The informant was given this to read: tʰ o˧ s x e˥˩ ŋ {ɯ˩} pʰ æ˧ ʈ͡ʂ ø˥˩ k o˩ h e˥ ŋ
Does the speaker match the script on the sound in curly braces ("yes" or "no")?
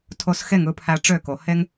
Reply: no